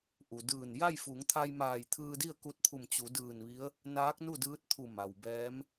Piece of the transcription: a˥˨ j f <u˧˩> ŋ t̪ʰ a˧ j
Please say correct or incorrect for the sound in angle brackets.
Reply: incorrect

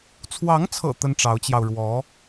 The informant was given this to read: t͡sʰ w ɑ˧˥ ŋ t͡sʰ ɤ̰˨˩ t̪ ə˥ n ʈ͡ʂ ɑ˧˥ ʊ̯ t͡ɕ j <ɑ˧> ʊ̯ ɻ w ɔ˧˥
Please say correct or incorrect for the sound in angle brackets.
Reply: correct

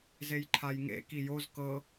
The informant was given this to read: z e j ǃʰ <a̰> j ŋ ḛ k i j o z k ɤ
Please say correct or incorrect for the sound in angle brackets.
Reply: incorrect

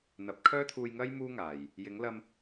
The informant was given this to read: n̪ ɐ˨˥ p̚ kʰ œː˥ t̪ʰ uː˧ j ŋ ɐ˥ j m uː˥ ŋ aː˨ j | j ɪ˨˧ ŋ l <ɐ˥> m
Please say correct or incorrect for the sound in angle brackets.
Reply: incorrect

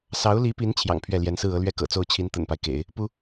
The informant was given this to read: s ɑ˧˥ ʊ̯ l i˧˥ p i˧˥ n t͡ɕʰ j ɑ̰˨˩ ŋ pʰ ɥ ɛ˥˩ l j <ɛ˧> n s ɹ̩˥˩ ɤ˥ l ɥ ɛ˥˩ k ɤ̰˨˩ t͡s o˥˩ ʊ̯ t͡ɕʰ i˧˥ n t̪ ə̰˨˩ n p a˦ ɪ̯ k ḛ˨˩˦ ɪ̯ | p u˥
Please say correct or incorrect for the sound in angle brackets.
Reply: incorrect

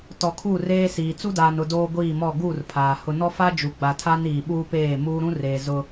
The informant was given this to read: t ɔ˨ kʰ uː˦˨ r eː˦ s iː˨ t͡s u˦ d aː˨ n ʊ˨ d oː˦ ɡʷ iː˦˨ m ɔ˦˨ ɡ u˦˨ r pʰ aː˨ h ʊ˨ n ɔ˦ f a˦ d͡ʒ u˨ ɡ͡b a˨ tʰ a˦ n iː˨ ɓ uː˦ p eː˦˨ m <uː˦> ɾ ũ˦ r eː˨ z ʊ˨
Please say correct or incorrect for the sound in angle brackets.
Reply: correct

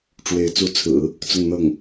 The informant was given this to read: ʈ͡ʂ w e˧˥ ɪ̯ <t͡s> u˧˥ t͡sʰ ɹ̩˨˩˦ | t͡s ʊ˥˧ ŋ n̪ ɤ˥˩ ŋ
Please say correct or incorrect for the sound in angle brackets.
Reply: correct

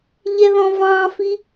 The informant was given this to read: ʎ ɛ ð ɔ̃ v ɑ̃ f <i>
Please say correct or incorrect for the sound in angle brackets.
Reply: correct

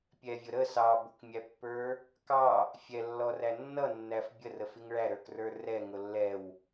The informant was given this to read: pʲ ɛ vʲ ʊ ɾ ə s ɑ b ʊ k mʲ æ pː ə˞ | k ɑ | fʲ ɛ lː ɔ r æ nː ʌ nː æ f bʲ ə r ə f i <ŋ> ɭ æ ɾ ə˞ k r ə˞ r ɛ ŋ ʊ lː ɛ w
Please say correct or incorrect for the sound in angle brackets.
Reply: correct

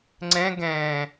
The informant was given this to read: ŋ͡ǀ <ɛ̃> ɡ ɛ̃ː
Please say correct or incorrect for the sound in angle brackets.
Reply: correct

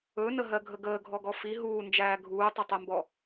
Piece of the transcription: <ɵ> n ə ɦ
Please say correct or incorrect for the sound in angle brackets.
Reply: correct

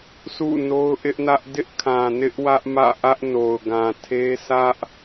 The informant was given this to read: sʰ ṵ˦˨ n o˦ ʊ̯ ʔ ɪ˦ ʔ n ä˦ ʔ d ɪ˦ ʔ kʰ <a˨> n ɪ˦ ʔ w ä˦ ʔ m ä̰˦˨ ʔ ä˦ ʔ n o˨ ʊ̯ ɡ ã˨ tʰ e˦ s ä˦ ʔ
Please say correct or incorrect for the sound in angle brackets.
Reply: incorrect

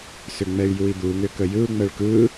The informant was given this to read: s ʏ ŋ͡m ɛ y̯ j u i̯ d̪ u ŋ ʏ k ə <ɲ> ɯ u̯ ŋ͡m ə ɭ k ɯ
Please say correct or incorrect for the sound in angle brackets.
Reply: incorrect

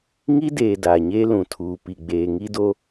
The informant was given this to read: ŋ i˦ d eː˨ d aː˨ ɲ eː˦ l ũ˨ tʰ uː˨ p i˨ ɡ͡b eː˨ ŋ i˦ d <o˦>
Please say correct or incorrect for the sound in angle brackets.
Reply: correct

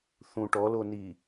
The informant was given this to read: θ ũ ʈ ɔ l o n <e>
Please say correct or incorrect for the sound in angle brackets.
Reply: incorrect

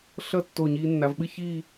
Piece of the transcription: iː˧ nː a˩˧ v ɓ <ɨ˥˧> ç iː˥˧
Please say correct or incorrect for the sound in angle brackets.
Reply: correct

